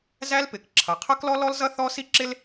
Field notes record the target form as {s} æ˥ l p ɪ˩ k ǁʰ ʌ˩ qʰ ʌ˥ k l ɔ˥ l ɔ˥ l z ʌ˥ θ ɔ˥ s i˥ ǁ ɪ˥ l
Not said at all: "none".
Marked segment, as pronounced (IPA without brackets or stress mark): z